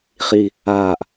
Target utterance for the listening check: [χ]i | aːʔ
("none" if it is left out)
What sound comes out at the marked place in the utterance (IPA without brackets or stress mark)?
χ